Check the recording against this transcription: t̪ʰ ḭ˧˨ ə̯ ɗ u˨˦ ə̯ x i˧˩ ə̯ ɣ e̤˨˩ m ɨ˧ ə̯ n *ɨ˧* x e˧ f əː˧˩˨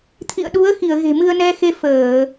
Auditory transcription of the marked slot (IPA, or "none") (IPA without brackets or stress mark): ɛ˧